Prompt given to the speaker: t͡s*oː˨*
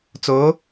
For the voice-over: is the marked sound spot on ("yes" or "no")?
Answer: no